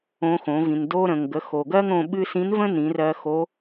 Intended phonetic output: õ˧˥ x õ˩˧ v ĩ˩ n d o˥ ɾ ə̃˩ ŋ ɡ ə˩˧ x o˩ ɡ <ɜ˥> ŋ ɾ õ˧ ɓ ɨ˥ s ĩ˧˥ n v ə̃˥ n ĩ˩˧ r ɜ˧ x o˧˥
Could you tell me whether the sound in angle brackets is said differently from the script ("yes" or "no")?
no